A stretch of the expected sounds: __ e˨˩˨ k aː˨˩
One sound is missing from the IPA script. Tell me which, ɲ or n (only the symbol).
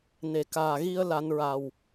n